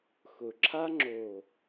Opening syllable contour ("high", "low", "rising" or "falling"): low